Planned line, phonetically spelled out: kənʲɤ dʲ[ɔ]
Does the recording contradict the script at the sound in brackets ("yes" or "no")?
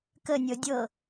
yes